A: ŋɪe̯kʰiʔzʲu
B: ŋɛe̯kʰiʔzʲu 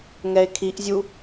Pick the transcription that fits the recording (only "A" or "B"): B